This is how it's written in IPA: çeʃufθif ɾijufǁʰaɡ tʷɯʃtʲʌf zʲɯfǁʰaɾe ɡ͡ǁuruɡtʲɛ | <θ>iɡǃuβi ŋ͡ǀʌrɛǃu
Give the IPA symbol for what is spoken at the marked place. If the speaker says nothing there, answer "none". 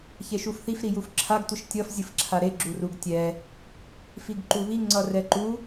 f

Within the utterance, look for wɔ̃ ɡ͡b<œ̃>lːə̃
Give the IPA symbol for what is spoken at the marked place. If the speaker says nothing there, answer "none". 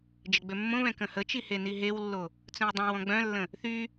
œ̃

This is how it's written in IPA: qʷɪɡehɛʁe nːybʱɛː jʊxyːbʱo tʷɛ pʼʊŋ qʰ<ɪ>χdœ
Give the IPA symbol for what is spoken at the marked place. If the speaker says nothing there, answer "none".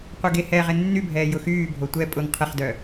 ɪ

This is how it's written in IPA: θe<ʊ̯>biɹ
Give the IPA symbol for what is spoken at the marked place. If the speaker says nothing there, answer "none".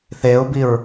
ʊ̯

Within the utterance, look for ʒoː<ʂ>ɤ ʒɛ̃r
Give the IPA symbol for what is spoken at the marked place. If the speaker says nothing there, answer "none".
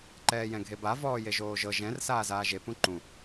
ʒ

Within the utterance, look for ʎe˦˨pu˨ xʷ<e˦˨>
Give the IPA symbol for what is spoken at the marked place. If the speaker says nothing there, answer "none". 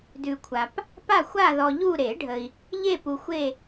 e˦˨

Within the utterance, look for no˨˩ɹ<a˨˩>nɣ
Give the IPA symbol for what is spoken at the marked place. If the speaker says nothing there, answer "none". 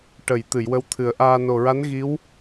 a˧˥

